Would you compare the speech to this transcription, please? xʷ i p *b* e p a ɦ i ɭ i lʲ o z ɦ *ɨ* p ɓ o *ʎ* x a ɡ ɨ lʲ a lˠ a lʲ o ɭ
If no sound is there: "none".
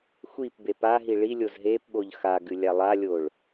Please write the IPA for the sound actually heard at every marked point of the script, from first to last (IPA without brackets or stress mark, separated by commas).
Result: b, e, ʎ